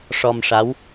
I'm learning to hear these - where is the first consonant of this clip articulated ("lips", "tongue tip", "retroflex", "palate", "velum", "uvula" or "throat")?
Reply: retroflex